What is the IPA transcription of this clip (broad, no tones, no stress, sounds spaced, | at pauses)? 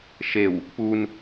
ʃ e w | p u n